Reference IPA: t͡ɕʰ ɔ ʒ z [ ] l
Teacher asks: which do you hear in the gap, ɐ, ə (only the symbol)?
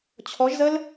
ə